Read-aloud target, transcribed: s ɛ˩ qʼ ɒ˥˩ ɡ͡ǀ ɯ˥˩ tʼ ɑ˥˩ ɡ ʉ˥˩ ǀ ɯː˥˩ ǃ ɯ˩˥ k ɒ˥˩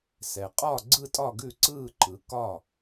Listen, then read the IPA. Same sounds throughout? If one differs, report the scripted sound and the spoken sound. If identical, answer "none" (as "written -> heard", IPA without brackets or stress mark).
ɑ˥˩ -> ɒ˥˩